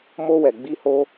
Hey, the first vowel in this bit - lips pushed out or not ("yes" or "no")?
yes